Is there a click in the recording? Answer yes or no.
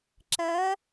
yes